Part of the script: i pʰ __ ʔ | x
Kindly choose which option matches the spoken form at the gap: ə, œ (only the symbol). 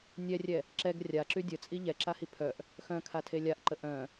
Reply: œ